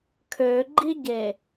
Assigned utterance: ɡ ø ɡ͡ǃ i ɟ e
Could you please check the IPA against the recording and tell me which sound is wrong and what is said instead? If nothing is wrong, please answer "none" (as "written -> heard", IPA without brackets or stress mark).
ɡ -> kʰ